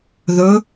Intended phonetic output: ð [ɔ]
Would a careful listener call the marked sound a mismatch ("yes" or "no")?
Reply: yes